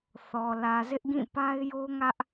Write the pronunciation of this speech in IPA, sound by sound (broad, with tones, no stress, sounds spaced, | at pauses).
θ ɔ˨ l ä˨ z ɪ˦ ʔ ɡ ĩ˦˨ p a˦ ɪ̯ j o˦ ŋ ä˦ ʔ